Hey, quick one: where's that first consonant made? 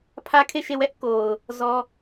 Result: lips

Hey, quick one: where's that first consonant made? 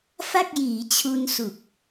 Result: lips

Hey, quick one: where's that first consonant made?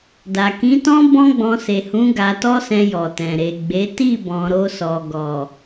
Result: tongue tip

